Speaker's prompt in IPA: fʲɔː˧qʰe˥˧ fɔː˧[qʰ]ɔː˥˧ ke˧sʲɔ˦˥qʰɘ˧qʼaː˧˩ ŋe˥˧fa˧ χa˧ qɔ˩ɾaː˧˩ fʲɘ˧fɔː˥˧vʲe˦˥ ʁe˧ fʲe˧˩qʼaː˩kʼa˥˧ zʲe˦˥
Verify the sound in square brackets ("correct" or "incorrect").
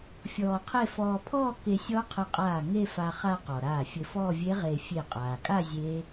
incorrect